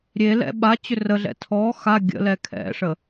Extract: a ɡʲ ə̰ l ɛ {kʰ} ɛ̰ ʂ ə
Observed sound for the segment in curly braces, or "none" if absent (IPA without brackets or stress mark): kʰ